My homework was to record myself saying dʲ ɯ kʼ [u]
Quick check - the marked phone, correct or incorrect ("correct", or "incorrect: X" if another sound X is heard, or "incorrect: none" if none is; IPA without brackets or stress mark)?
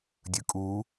correct